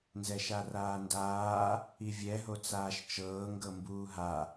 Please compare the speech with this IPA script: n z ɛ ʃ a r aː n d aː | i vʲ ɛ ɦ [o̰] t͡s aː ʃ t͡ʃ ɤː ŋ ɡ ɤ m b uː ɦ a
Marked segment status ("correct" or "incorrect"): incorrect